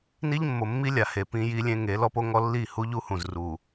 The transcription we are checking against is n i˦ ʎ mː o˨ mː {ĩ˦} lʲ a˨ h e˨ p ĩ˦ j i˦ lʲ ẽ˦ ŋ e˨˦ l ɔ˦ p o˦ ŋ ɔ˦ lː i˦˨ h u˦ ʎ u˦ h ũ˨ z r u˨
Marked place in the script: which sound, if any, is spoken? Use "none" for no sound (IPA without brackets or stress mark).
i˦